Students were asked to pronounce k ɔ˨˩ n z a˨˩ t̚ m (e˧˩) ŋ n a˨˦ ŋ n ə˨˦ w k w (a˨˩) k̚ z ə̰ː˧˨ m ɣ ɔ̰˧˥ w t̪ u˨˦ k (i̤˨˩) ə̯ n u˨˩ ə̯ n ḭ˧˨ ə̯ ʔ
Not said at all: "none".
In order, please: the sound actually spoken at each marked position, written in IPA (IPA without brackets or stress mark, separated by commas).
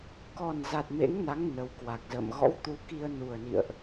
ḛ˧˥, a˨˩, i˧